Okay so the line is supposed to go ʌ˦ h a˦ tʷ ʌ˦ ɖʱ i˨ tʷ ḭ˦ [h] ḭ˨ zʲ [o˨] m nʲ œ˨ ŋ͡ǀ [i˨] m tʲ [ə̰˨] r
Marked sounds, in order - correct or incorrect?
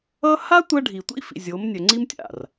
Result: incorrect, incorrect, incorrect, incorrect

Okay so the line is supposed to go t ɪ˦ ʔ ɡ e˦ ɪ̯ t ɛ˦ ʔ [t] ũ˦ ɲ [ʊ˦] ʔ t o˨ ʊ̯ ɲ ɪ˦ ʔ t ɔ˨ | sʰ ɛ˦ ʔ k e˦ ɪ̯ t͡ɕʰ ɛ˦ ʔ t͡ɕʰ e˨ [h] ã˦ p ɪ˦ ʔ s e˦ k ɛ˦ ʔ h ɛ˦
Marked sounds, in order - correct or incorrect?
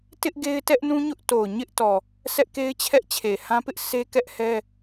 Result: incorrect, correct, correct

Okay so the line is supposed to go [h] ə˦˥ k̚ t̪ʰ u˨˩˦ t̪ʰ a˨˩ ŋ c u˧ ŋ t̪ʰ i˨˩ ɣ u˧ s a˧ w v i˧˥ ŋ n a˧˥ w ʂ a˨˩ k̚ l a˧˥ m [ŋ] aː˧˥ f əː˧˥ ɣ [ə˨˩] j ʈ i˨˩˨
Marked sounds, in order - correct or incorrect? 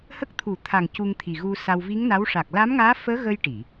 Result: correct, correct, incorrect

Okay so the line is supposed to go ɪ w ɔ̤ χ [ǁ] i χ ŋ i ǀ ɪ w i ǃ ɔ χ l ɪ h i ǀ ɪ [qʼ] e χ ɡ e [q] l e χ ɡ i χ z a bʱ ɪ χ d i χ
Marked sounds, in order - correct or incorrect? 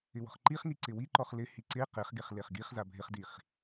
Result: incorrect, incorrect, incorrect

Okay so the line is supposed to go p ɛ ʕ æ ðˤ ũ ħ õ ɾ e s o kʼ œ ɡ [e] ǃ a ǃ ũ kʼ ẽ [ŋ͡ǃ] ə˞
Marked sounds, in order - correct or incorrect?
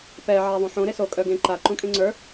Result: incorrect, incorrect

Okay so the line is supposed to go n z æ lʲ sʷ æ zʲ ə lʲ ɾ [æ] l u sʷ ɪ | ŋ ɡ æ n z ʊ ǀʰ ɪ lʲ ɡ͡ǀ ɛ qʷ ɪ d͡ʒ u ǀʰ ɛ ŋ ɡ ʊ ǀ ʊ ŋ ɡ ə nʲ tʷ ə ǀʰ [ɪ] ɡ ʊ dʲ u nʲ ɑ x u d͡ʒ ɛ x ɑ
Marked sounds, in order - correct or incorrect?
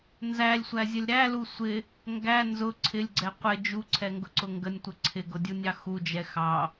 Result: correct, correct

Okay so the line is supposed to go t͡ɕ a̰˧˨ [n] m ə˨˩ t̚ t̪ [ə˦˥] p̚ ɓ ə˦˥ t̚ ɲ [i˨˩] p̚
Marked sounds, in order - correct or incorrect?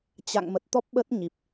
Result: incorrect, incorrect, correct

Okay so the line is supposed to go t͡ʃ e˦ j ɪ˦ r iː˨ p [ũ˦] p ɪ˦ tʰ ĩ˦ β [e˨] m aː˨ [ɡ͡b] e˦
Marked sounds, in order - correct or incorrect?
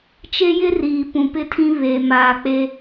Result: incorrect, correct, incorrect

